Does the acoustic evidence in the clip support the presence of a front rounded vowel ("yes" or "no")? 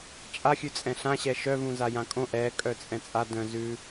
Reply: yes